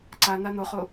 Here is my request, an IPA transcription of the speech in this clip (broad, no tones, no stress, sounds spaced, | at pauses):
ǀ a n a n o χ o